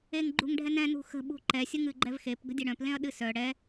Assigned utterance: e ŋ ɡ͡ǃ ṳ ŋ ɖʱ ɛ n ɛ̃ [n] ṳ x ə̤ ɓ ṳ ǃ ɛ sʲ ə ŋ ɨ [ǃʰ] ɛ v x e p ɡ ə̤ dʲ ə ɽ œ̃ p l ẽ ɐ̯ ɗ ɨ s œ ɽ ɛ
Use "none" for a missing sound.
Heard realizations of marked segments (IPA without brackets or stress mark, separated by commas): n, ɡ͡ǃ